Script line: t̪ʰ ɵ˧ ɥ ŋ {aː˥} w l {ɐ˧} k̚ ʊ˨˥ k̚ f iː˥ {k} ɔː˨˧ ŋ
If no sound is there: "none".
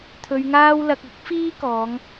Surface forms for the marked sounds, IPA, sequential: aː˥, ɐ˧, k

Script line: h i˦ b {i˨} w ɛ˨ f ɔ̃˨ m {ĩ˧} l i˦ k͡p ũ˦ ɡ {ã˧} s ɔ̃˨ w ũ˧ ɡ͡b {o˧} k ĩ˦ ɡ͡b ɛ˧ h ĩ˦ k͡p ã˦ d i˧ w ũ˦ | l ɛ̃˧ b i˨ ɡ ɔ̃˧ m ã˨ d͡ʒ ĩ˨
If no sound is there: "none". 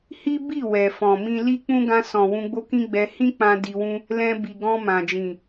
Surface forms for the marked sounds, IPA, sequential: i˦˨, ĩ˧, ã˧, o˦

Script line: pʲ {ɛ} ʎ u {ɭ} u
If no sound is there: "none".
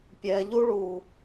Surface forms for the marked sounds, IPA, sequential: ɛ, ɭ

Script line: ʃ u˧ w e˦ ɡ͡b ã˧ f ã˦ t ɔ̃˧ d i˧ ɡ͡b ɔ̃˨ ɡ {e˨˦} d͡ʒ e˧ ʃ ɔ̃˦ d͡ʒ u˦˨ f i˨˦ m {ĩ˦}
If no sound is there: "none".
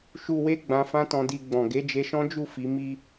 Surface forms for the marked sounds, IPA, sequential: e˨˦, i˦

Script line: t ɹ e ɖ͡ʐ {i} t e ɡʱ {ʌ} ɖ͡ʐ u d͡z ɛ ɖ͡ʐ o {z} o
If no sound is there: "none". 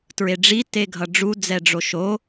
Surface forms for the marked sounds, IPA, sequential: i, ʌ, ʃ

